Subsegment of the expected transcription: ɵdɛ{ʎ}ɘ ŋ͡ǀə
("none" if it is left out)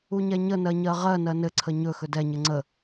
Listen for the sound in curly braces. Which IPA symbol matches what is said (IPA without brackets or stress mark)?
ɲ